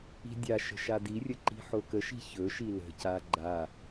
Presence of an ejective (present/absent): absent